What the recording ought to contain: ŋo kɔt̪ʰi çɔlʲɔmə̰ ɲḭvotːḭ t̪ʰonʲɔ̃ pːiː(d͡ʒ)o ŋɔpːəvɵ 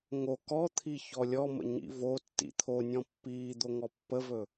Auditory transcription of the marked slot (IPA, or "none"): d̪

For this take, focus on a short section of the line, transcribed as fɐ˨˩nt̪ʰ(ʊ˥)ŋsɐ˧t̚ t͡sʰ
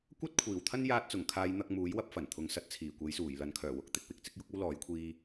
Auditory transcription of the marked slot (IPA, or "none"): ʊ˨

